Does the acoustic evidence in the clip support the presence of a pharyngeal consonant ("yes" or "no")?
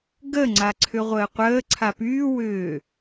no